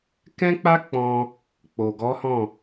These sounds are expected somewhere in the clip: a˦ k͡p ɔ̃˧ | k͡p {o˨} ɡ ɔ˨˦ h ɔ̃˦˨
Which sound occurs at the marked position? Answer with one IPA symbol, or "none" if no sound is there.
o˨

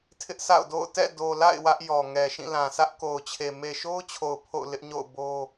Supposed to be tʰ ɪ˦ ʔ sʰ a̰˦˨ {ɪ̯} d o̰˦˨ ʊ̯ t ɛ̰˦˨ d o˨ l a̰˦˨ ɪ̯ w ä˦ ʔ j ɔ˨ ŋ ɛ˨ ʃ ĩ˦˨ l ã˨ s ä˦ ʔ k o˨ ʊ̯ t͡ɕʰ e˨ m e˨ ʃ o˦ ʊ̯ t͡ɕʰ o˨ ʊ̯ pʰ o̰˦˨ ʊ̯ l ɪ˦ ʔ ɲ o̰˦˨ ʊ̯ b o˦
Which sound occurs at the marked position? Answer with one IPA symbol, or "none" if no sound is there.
ʊ̯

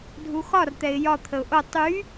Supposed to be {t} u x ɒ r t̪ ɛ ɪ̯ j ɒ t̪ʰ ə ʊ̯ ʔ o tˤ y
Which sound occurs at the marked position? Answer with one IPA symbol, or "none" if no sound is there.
dʱ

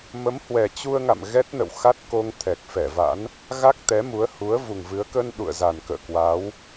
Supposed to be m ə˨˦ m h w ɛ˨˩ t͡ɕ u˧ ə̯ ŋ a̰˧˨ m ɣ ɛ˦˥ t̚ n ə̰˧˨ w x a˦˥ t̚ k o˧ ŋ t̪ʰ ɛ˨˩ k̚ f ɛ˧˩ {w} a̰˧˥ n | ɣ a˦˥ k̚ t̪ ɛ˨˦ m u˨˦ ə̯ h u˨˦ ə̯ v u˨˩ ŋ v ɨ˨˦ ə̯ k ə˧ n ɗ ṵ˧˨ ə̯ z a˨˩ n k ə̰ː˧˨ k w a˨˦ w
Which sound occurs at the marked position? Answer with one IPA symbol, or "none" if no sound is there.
v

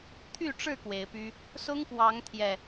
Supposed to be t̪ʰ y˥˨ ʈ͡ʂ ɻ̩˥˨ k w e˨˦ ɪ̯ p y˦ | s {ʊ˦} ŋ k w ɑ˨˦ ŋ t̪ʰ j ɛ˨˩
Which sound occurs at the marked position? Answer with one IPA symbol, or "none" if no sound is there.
ʊ˦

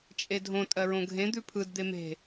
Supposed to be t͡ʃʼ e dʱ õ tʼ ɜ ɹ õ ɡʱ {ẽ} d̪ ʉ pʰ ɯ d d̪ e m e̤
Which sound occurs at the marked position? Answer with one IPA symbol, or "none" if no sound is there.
ẽ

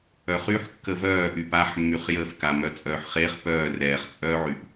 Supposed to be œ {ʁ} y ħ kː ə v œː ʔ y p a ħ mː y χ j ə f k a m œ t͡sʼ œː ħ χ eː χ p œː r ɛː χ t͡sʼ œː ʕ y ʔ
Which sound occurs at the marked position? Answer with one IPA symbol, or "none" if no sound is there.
χ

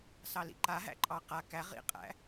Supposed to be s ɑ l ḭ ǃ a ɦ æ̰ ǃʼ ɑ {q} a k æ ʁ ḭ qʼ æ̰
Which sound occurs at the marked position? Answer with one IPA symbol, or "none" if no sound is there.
q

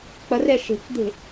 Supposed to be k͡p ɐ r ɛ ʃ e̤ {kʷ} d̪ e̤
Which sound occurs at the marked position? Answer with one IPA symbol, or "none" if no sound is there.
k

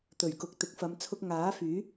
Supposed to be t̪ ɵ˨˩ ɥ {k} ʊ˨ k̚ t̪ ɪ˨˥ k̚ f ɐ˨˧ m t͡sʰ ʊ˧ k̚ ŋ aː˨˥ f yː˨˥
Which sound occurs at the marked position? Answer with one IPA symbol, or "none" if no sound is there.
k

